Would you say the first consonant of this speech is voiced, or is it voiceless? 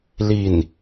voiced